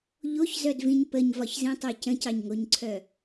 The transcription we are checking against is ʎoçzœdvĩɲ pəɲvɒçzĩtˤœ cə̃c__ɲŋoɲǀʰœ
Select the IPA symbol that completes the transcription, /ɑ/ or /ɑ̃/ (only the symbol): ɑ